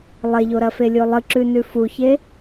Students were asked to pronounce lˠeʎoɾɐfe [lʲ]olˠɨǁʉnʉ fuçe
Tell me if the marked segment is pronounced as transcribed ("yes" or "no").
yes